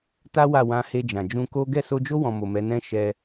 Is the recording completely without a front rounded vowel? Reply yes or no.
yes